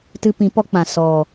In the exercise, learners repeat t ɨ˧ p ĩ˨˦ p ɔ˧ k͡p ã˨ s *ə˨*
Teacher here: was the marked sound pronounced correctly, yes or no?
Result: no